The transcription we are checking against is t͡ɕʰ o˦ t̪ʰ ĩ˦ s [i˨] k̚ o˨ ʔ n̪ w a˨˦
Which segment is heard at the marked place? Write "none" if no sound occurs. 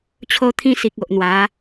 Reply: i˨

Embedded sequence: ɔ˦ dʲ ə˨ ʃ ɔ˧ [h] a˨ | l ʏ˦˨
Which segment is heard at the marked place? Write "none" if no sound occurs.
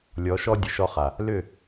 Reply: χ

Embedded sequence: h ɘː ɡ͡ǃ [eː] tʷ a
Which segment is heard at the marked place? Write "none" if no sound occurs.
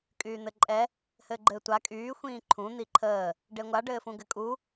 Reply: ɘː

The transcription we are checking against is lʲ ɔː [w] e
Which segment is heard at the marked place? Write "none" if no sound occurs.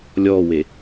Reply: w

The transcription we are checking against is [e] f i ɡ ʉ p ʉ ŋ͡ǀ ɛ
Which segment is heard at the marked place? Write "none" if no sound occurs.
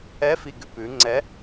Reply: ɛ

